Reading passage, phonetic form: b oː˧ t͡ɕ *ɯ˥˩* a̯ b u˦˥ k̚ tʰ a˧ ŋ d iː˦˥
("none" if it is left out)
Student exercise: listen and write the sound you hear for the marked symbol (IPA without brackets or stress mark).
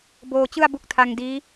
ɯ˥˩